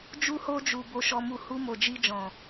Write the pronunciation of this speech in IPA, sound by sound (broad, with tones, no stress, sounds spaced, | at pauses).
d͡ʒ u˧ h o˧ d͡ʒ u˨ b o˨ ʃ ɔ˨ m u˨ h u˧ m o˨ d͡ʒ i˧ d͡ʒ ɔ̃˨